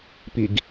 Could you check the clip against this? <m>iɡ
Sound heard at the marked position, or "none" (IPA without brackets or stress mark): p